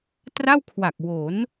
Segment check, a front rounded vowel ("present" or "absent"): absent